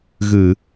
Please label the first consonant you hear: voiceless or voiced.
voiced